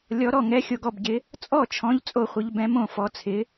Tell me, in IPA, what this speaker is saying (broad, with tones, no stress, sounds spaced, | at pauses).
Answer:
lʲ ɔ˨˥ ɾ ɔ˥˩ ŋ ɛ˨˥ xʲ o˨˥ ɡ ɔ˥˩ b ɟ ɪ˨˥ | t͡sʼ ɔ˥˩ t͡ʃʰ ɔ̃˨˥ ʎ t͡sʼ o˥˩ χʷ ɪ˨˥ ʎ b ɛ̃˨˥ m õ˥˩ f ɔ˨˥ t͡sʰ ɪ˨˥